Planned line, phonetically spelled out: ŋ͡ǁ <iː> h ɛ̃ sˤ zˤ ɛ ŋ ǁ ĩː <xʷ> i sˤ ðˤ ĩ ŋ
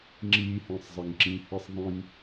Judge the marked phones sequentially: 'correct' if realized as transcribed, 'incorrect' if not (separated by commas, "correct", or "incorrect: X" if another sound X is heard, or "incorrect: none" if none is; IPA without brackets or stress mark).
correct, incorrect: h